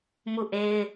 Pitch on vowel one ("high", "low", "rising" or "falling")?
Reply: falling